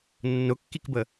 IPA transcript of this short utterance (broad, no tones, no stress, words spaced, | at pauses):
nːʊkːikbə